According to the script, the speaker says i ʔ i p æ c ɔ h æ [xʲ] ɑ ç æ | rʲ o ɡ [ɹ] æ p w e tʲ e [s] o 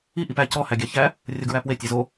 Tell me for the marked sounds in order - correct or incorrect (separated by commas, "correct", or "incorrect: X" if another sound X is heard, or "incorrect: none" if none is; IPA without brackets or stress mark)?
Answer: incorrect: ɡʲ, correct, incorrect: z